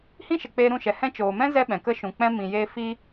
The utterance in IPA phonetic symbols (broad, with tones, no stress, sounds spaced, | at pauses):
h ĩ˦ ʃ ə˨ k͡p eː˧ ɾ ũ˦˨ ʃ ɛ˨ h ɛ̃˧ t͡ʃ oː˨ m ɛ̃˦ z ɛ˦ ɓ ɛ̃˨ k ə˦ ʃ ũ˨ k͡p ɛ̃˦ m ĩ˨ j eː˧ f iː˦